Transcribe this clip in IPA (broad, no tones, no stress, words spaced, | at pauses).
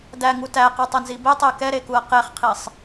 dæŋu tæqutˤenzi betˤe kɛɾekuɐ̯ qeχqʰisˤ